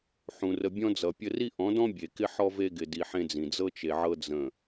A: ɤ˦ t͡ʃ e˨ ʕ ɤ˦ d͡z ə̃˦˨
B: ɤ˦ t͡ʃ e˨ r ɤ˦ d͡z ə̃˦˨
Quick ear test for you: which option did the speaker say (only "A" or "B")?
A